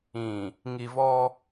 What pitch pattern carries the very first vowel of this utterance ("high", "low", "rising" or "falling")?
low